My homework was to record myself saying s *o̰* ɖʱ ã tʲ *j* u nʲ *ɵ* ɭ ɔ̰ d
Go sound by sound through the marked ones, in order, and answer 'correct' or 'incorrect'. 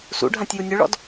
incorrect, correct, correct

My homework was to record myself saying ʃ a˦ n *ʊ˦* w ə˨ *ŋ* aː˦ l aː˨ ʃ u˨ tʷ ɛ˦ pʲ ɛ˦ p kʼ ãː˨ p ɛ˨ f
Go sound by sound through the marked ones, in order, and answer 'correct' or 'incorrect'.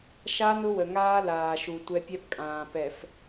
correct, correct

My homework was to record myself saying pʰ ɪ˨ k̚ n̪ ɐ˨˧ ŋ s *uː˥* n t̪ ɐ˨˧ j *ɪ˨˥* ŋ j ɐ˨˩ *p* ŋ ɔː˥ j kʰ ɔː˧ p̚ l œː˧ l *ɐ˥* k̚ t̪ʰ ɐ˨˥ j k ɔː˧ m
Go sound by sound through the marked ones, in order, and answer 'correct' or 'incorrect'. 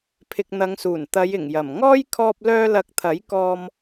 incorrect, incorrect, incorrect, incorrect

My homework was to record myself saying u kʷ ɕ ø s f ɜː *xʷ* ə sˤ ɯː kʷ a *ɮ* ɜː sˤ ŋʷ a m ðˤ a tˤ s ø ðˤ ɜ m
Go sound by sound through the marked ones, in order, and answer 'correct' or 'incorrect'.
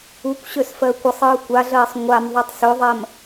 incorrect, correct

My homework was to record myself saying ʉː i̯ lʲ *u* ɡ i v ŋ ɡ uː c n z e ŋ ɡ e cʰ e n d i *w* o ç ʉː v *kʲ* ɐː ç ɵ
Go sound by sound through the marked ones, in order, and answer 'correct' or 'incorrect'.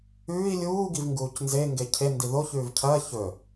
incorrect, incorrect, incorrect

